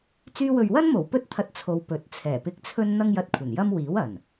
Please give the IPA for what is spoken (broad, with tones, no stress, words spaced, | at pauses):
t͡syː˧wɵ˨ɥwɐ˥nmo˨˩w pɵ˥t̚t̪ʰɐ˧t̚ t͡sʰo˨w pɵ˨˥t̚ t͡sʰɛː˨˩pɪ˧k̚t͡sʰɵ˥n n̪ɐ˥ŋjɐ˧t̚kʷʰɐ˨˩n jɐ˥mwiː˨˥wɐ˨˩n